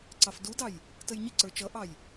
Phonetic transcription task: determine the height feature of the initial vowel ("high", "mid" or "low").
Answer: low